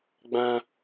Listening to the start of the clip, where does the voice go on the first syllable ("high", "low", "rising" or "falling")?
high